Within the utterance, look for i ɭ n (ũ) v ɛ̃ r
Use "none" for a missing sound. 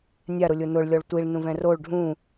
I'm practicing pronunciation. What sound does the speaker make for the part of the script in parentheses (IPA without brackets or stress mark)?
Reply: ũ